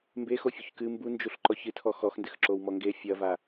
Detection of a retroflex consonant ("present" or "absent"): absent